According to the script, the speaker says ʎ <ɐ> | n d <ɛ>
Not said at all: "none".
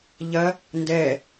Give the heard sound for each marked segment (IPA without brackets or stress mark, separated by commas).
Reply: ɐ, ɛ